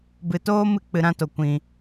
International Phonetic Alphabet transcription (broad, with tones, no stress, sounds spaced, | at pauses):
b ɨ˨ t oː˦ m ɨ˧ k͡p ɨ˨ ɾ ã˧ t o˨ kʷ ĩ˨